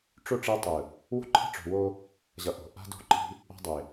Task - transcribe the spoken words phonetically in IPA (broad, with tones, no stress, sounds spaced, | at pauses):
ʈ͡ʂ o˦˨ ʈ͡ʂ e˦ tˤ ɯ˨ | w o̤˦ ǃʰ e̤˦ ʈ͡ʂ o̤˨ w o˦ | ʑ ʌ˨ ʔ o̤˨ ʔ a̤˦ d o̤˦ ǃ i̤˦ | a̤˦ dˤ e˨